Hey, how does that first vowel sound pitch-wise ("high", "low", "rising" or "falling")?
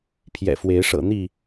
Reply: low